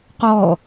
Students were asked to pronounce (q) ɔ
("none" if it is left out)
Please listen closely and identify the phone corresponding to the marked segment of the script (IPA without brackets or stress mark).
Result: q